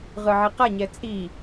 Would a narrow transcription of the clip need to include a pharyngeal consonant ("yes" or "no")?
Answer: yes